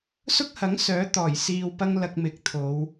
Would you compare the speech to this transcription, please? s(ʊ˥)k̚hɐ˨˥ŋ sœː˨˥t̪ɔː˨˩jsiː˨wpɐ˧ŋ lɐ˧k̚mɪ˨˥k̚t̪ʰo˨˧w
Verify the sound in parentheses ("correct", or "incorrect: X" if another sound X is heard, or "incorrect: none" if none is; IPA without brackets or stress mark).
correct